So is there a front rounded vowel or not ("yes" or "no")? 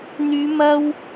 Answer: yes